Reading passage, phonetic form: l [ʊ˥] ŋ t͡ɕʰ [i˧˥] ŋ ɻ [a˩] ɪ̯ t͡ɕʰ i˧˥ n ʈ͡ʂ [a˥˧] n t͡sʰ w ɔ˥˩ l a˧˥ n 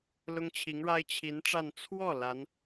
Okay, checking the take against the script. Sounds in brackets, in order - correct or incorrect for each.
correct, correct, incorrect: a˥, correct

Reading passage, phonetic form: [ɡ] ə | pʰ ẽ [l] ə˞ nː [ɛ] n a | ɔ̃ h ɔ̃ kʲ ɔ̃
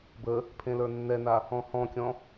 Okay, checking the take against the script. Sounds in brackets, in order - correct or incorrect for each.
incorrect: b, correct, correct

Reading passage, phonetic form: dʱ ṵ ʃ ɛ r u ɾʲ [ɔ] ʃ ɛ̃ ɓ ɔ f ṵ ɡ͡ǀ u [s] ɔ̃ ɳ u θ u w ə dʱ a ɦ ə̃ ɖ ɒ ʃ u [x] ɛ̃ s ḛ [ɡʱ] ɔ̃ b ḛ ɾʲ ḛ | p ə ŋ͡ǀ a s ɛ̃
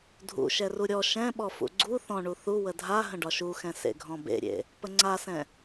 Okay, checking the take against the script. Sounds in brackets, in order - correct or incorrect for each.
correct, incorrect: θ, correct, correct

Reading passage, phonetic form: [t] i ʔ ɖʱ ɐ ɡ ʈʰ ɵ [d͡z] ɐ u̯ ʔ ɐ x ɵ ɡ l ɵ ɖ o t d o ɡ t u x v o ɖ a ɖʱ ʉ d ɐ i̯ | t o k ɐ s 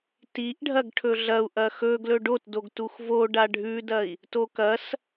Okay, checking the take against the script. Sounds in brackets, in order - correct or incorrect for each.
correct, incorrect: ɮ

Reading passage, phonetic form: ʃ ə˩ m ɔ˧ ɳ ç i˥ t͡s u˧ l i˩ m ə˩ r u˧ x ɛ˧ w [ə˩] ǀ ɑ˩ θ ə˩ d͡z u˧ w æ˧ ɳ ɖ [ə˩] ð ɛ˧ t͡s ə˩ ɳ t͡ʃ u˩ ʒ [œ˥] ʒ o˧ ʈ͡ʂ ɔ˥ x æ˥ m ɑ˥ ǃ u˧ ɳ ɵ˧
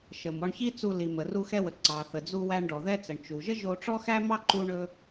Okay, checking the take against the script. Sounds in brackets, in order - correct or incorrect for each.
correct, incorrect: ɔ˩, incorrect: ə˥

